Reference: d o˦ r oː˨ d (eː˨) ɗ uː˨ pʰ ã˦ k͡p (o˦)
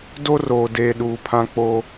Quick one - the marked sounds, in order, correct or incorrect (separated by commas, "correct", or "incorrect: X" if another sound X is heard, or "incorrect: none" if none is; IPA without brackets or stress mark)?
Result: correct, correct